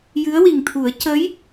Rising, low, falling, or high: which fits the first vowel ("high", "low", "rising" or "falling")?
rising